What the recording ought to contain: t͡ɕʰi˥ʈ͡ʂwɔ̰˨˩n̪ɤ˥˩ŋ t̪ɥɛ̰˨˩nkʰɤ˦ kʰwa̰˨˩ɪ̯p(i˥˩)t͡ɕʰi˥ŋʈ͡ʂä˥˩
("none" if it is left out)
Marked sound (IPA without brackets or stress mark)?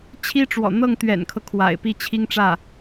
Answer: i˥˩